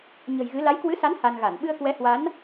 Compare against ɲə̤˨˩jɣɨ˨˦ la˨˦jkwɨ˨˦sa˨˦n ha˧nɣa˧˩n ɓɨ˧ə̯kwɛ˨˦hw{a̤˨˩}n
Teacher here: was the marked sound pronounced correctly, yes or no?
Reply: no